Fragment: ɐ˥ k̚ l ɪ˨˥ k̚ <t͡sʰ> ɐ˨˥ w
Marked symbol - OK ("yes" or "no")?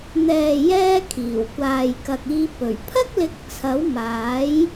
yes